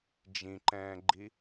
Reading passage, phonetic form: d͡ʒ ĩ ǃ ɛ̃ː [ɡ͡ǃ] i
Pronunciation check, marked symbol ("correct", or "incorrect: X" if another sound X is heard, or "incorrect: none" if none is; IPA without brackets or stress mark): correct